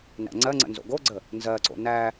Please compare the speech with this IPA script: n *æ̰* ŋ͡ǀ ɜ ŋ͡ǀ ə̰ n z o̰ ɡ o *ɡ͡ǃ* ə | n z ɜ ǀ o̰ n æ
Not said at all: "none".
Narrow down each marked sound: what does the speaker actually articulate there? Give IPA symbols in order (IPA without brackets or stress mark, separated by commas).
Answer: æ̰, ɡ͡ǀ